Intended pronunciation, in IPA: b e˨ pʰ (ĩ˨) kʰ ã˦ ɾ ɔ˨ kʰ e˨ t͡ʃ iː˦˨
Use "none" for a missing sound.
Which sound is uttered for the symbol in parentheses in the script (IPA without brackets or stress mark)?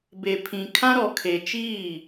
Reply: ĩ˨